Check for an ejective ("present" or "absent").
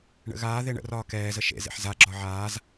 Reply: absent